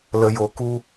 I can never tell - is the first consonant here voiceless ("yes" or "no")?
no